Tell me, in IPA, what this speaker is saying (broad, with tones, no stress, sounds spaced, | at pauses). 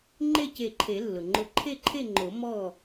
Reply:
ŋ͡ǃ e˥˨ c e˧˩ ǃʰ e˨˩˦ lː ʊ˩ ŋ͡ǃ ʊ˧˩ ǃʰ e˥˨ ǃʰ e˥˨ ŋ͡ǃ o˨˩˦ m ɔ˥˨